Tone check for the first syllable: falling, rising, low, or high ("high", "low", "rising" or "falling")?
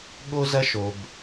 high